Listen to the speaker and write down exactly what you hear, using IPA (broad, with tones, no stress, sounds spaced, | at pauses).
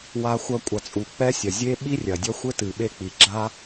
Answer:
w a˨ xʷ ɐ˨ kʷʼ ɐ˨ t͡sʼ u˨ k͡p ɛ˦ sʲ ɐ˨ zʲ e˦ ɓ i˦ rʲ ɐ˨ dʲ ɐ˦ xʷ ɘ˦ t ɨ˨ ɓ e˦ k͡p i˨ ɡ͡ǁ a˦